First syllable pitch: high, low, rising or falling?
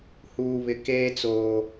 low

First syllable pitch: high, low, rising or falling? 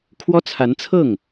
high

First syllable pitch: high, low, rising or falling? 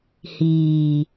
low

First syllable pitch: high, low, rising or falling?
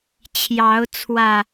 rising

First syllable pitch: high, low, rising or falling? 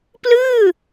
falling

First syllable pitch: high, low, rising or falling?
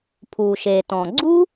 low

